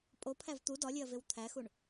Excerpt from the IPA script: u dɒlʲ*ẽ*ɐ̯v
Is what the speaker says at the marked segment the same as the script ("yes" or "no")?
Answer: no